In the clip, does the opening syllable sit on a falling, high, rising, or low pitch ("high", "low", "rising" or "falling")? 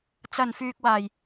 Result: low